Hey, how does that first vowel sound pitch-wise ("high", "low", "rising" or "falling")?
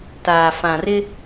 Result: low